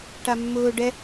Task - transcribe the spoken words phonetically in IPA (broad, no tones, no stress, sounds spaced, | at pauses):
ʈ a mː ʊː ɖ ɛ